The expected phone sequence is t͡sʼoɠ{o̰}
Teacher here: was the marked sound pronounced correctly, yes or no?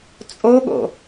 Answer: yes